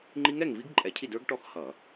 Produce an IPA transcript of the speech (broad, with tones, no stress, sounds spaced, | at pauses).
ŋ͡ǃ i˦˥ ŋ ɛ˥˨ ŋ v i˦˥ ɡ ǃʼ ɛ˧˩˧ cʰ i˥˨ d ə˞˦˥ ɡ ʈ ɔ˥˨ x h ʌ˧˩˧